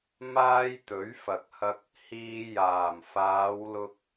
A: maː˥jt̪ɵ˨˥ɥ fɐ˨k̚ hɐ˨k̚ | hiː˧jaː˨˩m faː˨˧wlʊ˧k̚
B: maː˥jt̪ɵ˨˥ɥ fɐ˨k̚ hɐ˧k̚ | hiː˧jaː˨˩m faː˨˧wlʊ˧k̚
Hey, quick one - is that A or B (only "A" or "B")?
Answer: B